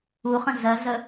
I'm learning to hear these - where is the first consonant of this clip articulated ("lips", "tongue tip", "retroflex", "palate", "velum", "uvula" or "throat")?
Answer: uvula